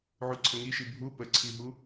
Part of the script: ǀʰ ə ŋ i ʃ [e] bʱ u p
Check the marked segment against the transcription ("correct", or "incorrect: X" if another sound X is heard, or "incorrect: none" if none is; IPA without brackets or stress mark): incorrect: i